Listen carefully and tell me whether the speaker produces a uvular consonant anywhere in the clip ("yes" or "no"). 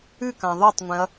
no